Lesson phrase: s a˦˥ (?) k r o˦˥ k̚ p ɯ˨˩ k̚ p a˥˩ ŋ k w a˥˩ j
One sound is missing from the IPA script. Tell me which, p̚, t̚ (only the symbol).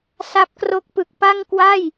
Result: p̚